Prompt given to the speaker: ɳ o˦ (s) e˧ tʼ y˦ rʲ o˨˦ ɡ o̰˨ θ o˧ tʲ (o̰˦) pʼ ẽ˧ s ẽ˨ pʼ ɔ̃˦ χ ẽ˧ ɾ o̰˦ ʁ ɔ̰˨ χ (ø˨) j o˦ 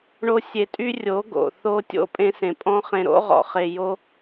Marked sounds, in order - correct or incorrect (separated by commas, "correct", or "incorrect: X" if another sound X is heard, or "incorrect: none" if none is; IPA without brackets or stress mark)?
incorrect: sʲ, correct, incorrect: e˨